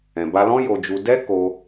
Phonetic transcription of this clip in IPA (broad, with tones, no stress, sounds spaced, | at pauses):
ɛ̃˨ b a˧ l ɔ̃˦ j o˧ d͡ʒ u˧ d ɛ˦ k o˧